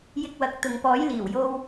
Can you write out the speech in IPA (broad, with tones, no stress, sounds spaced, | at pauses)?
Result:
j ɪ˧ k̚ w ɐ˨˥ k̚ t̪ ʊ˨ ŋ p ɔː˨˥ j l iː˨˩ w j o˧ w